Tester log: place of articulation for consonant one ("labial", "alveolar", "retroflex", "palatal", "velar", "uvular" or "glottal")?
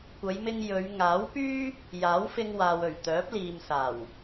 velar